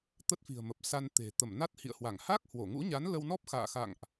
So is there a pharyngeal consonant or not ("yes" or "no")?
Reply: no